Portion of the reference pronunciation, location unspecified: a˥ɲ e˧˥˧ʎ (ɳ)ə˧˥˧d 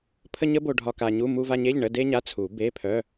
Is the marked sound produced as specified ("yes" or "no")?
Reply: yes